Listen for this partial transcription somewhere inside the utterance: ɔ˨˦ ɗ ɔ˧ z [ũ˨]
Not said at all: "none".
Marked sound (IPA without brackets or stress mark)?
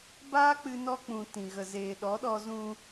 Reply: ũ˧